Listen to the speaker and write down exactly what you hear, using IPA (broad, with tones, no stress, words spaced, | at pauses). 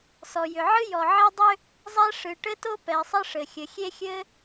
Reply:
sɔ˩jʏ˩ ʕɨ˥ jɔ˩ʕe˥dˤʏ˥ | zˤɛ˥ ʂɨ˩ʈɘ˥to˥ pɛ˩sˤɘ˥ʂɘ˩ xʲɘ˩xʲe˥xʲɘ˥